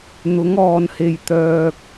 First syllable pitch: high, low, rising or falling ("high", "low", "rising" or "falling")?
rising